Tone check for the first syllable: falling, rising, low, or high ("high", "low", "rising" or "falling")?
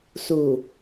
low